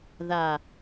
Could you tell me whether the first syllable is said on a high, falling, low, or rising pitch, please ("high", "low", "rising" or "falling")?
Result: low